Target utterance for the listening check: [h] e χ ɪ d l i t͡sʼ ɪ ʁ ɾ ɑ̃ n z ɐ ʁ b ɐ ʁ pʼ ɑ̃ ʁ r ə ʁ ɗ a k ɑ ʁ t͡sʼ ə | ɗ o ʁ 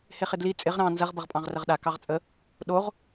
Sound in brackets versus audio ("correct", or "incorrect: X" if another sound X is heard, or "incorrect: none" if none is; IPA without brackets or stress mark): correct